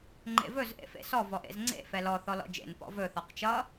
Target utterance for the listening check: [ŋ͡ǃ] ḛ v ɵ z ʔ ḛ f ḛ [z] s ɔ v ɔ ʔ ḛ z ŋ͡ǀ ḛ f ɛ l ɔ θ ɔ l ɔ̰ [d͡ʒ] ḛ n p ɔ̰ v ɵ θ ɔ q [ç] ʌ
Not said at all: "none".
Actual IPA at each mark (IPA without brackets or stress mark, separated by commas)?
ŋ͡ǃ, none, d͡ʒ, t͡ʃ